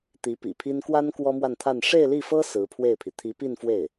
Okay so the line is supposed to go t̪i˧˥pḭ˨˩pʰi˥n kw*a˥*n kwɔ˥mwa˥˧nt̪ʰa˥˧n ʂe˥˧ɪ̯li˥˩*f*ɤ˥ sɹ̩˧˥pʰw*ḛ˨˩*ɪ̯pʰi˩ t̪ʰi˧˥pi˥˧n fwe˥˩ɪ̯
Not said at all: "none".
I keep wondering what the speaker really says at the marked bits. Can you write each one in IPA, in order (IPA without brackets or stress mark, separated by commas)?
a˥, f, e˥˩